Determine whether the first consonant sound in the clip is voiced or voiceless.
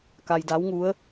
voiceless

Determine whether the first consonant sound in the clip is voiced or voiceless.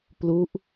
voiceless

